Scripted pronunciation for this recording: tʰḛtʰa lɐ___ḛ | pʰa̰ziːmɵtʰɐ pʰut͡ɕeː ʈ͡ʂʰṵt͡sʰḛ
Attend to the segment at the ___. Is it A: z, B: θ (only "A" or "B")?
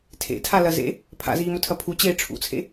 A